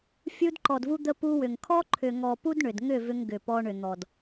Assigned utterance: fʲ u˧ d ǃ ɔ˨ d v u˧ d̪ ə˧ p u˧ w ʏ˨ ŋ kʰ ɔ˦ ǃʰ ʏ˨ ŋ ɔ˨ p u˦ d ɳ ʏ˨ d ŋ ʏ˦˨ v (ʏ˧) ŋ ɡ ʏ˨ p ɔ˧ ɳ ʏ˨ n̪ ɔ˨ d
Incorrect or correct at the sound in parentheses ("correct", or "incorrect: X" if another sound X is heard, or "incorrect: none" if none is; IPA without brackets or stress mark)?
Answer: correct